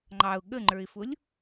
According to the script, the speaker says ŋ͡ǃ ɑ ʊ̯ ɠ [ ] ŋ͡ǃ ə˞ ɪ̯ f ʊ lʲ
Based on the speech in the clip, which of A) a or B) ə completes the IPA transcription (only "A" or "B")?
B